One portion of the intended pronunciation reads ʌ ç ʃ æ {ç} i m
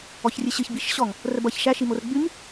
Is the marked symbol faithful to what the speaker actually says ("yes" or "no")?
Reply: no